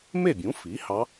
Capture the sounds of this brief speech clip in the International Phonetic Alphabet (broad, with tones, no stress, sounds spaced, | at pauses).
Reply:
m e˥˩ bʲ ũ˩˥ f i˩˥ h ɑ˧˥